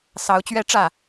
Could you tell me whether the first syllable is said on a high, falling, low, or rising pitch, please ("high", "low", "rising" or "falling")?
rising